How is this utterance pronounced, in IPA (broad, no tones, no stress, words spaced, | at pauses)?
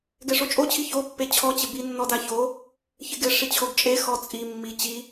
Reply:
ɡɛʂot͡ʃʼot͡ɕʰi çopːe t͡ɕʰɔt͡ɕɪ binːɔdaço | çɪɡɪʂi t͡ɕʰoɡt͡ʃʼe xɔt͡sʼimːi t͡ɕi